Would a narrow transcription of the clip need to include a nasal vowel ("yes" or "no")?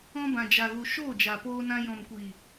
yes